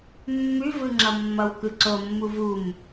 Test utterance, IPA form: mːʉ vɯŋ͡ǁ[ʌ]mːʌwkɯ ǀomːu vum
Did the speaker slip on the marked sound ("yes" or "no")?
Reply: no